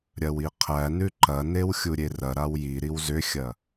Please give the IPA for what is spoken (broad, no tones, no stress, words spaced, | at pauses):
ɾʲɐwiqʰænʉ ǃɐnew xʲuɾʲerɐɾaw jiɾiw zʏxʲɐ